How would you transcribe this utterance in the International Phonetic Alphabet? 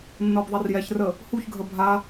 nː ɤ b ðˤ ɛ r j ɛ ç r ə | h u ç ɡʱ ə bʱ a

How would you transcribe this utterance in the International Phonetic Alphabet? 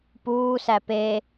p uː s æ p e

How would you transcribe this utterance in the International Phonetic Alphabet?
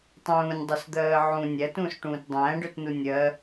tˤ ũː nʲ dˤ ø s d̪ ɜː ʕ ũ nʲ æ t ũː s ʈ ũː t dˤ æ̃ː ɖ ø t n u nʲ ɜ

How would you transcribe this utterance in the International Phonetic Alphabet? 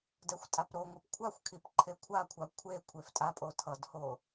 d ɛ xʷ tʼ a p ɾ o ŋʷ a p kʷʰ a xʷ kʰ i p ǃʰ e kʷʰ a kʷʰ a kʷʰ e kʷʰ e f tʼ a pʼ o tʰ ʌ d h o

